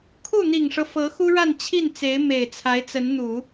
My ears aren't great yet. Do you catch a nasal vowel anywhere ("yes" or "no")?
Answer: no